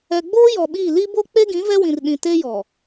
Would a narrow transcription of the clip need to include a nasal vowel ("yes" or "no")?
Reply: yes